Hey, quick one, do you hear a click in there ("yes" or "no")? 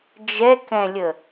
no